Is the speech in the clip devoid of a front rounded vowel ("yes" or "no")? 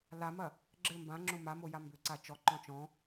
no